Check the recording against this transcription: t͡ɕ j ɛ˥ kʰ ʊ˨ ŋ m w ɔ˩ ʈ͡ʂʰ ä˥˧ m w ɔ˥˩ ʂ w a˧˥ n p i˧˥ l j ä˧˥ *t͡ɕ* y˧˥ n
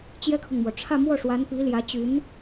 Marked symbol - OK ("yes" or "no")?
yes